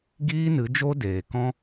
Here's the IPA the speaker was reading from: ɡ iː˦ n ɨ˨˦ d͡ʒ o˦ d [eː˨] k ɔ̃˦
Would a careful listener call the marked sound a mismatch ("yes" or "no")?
no